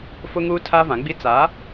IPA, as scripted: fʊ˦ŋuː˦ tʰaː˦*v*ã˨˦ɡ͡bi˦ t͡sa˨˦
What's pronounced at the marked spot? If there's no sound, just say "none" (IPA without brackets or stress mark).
v